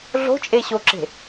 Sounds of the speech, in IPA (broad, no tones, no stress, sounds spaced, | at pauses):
ɮ o̤ t͡ʃʼ e ɕ o ǁ e̤